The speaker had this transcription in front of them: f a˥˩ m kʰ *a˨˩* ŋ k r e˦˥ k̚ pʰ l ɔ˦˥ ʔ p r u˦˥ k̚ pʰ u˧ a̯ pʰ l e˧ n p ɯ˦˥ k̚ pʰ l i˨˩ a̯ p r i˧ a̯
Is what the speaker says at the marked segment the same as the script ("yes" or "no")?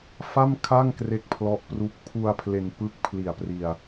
no